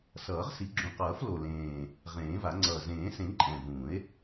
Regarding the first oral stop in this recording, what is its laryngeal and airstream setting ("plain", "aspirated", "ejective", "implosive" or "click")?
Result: click